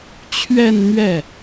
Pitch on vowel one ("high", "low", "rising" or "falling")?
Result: falling